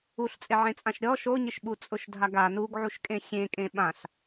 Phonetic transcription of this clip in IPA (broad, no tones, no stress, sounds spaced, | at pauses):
u ɬ t͡sʼ ɪ ʕ ẽ t͡sʼ ã ʃ ɾʲ ɔ ʃ o ɲ ɪ ʃ ɓ u t͡sʼ ʊ ʃ dʱ a ɡ a n u ɡ ʕ u ʃ kʼ ẽ xʲ ẽ kʼ ẽ ɓ ã ɬ